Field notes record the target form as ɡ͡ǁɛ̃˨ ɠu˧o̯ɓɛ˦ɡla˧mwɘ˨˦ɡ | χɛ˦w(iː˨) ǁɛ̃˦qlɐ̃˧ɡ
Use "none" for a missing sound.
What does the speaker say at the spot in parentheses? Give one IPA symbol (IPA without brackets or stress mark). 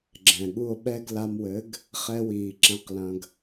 iː˨